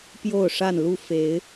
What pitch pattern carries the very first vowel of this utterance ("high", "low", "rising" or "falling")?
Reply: falling